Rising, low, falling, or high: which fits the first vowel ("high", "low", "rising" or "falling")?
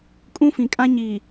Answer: high